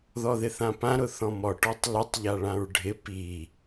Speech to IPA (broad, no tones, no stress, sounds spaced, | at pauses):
ð ɔ ð ɪ θ ã p ã ɾ ʊ θ ɔ̃ m ɔ ʈ ɔ tˤ l ə tˤ ʎ a ɭ ã ɹ ɖʱ ɪ p i